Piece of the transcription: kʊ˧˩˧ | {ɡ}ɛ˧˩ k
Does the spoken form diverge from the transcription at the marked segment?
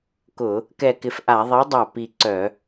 yes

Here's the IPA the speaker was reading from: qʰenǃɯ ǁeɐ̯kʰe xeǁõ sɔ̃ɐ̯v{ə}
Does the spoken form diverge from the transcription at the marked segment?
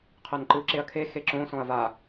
yes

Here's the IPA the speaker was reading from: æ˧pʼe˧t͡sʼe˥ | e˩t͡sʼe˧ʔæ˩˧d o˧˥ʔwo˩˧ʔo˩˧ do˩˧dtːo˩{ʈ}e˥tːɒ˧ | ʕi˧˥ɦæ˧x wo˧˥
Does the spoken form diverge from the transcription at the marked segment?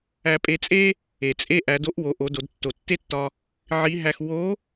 yes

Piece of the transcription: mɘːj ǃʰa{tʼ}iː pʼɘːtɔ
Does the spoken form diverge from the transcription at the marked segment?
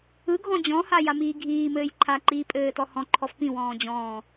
yes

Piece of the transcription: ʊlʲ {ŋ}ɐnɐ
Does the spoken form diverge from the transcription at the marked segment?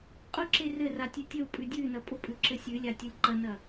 yes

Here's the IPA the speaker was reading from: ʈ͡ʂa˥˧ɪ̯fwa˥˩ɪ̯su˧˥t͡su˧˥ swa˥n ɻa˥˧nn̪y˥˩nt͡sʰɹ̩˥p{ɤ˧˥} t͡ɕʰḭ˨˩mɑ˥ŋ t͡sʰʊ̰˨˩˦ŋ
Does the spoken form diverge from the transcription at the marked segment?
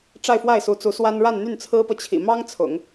yes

